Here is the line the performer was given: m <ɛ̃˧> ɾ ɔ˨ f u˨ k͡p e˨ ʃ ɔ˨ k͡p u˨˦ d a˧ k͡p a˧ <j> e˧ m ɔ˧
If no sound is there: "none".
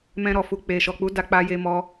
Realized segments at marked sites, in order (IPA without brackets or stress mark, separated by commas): ɛ̃˧, j